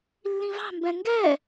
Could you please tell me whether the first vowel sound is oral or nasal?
nasal